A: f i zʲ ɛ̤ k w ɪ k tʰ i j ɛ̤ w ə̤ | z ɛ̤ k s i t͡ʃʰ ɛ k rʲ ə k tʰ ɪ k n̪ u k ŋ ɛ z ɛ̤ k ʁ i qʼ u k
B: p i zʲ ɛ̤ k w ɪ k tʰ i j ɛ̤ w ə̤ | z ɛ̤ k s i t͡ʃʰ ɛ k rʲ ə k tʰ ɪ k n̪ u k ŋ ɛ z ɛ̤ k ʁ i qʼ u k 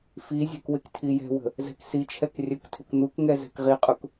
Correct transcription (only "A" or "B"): A